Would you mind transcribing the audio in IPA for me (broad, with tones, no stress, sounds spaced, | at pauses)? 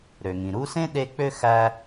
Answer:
ɾ ø˩ ŋ ĩ˩ ɾ u˦ s ẽ˥ ɗ e˦ k͡p ø˥ x æ˦